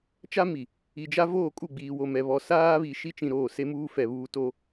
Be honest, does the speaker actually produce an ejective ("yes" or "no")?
yes